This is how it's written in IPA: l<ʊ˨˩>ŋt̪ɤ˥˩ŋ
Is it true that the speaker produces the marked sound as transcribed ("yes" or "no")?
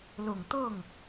yes